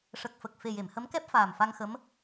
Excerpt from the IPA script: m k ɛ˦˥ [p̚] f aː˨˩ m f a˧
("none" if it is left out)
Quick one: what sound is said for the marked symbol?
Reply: p̚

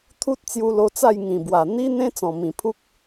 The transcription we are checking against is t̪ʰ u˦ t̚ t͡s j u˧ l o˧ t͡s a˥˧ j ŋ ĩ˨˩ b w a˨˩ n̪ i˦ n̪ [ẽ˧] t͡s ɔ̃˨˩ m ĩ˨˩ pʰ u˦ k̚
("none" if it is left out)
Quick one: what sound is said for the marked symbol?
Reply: ẽ˦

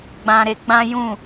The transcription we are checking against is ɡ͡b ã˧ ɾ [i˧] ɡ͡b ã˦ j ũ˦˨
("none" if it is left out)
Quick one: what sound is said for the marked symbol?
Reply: e˧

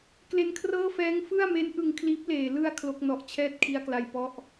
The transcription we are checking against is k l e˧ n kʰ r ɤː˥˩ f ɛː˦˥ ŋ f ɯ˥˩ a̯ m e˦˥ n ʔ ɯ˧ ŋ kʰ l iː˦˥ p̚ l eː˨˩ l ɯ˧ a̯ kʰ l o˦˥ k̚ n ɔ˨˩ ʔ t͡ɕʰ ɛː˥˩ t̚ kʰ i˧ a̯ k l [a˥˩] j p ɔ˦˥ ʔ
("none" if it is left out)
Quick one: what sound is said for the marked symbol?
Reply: a˧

